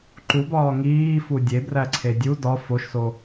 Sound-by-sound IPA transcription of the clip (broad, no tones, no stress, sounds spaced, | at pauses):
ǃ u b ɒː ŋ iː f u dʲ e b r æ ǀʰ e dʲ u d ɒ f o ʃ s o